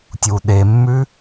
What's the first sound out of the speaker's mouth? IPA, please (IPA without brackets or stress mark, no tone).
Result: tʲ